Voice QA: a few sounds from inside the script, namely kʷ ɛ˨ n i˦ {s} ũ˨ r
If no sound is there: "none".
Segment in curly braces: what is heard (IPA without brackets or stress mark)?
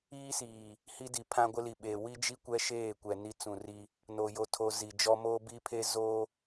t͡s